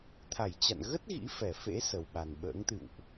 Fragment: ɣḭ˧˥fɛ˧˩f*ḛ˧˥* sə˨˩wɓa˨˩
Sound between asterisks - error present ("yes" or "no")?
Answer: no